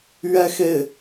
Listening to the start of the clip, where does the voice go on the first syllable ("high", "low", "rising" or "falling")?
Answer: falling